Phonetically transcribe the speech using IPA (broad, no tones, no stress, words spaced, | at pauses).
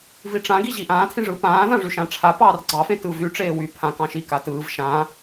viʈ͡ʂãɡi ʑiʔãːtʰĩ ʐɯpãːðã ʐyʃãʈ͡ʂʰa pɑːrɡ͡ǀɑfẽ tɯvy ʈ͡ʂeːwy pʰã kɑ̃ʃi katɯːv ʃã